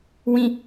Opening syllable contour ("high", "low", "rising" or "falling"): low